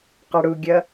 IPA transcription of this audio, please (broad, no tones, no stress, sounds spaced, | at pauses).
q ʌ ɽ u ɡʲ ʌ